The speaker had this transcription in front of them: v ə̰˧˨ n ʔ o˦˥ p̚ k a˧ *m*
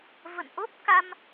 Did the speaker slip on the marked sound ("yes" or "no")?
no